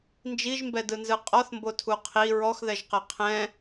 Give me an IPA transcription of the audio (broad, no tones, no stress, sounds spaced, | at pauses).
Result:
n d͡ʒ i ʒ m b ɛ d ɯ n z ɯ qʼ ɔ θ m b o tʰ u qʰ i ɹ ɔ x ð ɛ ʒ q ɛ qʰ ɛ̃